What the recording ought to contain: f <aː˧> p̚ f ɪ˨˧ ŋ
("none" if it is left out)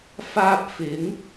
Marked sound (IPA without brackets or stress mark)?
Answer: aː˧